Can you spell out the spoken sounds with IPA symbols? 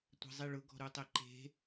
tʷ e̤ zˤ i ɭ ʊ ɡ ɔ̤ ɾ u tˤ e ǃ e̤

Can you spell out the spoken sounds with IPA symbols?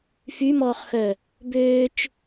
f y m ɔː χ x œ | b øː t͡ʃ

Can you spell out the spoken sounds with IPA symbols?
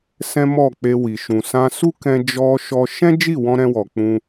s ɛ̃˦ m ɔ˦˨ k͡p e˧ w i˨ ʃ ũ˨ s ã˧ s u˦ k ɛ̃˧ d͡ʒ ɔ˧ ʃ ɔ˧ ʃ ɛ̃˦ d͡ʒ i˦˨ w ɔ̃˧ ɾ ɛ̃˧ w ɔ˨ k͡p ũ˧

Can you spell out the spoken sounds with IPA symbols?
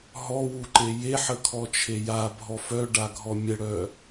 ɦ ɔ w u ǃ e j e ħ ə kʰ ɔ t͡ʃʰ e j a bʱ ɔ f œ ɖ a ɡʱ ɔ mʲ ə ɽ œ

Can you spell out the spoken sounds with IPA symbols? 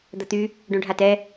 d̪ ɐ t̪ y | ɖ õ ɖʱ a t ɛ

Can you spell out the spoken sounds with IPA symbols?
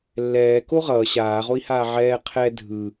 lː ɛː k o ʁ ʌː ɕ aː ʁ o i̯ h aː ʕ ɛː qʰ ɛ dʱ ɯ

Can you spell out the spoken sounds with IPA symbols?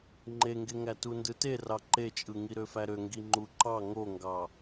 ŋ͡ǃ e ŋ ɡ e ŋ æ t u n d ɯ t e r ɑ ǃ e t͡ʃʼ ɯ ŋ i ɾ ø f æ ɾ ø ŋ ɡ i ŋ͡ǃ u ǃ ɑ ŋ o ŋ ɡ ɑ

